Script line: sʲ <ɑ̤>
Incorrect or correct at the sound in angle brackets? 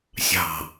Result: correct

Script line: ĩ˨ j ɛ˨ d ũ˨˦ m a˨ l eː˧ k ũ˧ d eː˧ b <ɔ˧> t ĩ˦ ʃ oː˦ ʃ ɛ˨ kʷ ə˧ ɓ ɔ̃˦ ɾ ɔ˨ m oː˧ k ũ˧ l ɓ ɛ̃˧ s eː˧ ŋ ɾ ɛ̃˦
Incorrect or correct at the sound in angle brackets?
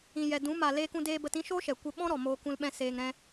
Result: incorrect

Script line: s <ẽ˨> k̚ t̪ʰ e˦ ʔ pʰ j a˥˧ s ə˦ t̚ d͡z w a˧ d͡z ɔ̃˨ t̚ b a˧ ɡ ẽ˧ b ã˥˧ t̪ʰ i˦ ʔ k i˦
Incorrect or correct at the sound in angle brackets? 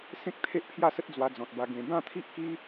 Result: incorrect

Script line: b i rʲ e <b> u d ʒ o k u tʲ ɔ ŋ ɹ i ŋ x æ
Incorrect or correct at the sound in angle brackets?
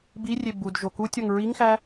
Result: correct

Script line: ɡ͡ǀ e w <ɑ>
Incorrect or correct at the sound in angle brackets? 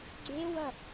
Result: incorrect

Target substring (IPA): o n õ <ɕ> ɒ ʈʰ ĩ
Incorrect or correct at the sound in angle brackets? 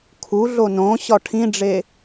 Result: correct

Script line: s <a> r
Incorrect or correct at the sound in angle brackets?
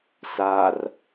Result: correct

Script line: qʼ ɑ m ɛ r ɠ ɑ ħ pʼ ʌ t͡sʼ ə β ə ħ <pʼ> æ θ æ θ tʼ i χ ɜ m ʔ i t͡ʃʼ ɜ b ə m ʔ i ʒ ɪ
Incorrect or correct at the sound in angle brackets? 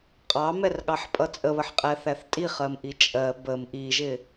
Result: incorrect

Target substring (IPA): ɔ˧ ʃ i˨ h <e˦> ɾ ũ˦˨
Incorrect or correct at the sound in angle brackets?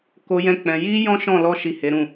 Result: incorrect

